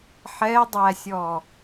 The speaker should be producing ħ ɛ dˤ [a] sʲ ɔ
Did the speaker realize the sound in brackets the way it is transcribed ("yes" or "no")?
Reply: no